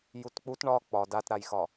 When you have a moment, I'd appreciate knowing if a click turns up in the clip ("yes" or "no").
no